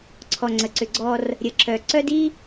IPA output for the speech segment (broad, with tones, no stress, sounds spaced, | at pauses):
ǀʰ ɔ˨ ŋ͡ǀ ə˨ ǀ ʏ˨ ɡ͡ǀ ɔ˦ r | ɾʲ ə˨ ǁ œ˨ ǀ œ˦ d i˦